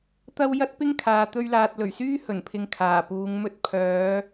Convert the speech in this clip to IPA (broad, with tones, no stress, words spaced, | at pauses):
t̪ɐ˧w jɐ˥t̚pɪ˥ŋkʰaː˨ t̪ɵ˧ɥlaː˨t̚lɵ˨˩ɥsyː˥ hɵ˨˩npʰɪ˨ŋ kʰaː˨˩puː˨˧ŋmɵ˥t̚ pʰœː˨˧